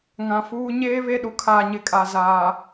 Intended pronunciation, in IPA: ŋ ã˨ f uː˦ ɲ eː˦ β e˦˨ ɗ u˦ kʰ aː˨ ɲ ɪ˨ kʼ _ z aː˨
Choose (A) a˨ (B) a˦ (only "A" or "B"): A